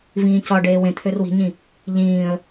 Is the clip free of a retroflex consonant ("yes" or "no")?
no